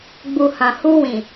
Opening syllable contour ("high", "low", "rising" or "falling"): low